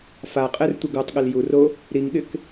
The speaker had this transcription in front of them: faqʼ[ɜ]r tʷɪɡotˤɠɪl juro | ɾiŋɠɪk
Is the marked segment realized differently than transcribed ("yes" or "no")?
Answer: yes